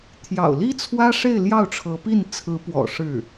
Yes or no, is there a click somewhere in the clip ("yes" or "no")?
no